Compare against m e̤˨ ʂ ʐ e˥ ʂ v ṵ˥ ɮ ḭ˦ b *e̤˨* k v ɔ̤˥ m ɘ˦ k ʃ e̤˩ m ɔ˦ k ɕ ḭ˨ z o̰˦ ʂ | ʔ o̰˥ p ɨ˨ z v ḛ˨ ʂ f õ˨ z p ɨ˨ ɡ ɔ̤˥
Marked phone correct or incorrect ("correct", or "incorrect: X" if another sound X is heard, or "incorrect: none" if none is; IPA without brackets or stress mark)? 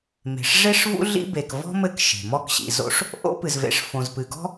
incorrect: e˨